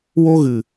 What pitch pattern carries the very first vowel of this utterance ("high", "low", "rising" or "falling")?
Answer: high